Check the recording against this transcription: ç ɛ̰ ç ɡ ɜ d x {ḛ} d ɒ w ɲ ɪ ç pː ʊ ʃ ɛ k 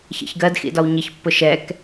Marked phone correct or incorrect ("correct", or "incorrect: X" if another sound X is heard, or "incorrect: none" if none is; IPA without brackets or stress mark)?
incorrect: ḭ